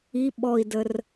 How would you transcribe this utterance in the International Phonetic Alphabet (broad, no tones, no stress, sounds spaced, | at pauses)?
i ɓ ɔ i̯ d ə r